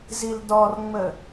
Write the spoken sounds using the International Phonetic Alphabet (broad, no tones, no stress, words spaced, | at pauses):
zildɔrŋ͡mə